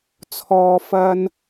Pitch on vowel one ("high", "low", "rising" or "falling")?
low